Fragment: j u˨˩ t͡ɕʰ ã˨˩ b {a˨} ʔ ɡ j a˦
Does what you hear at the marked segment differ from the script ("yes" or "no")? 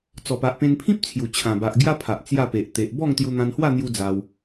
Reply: no